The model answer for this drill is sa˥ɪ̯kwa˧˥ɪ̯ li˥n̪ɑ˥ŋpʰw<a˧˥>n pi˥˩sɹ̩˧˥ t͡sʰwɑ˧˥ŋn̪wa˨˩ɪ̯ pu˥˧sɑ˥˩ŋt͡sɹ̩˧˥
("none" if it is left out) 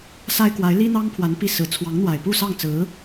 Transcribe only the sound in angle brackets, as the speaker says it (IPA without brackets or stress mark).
a˧˥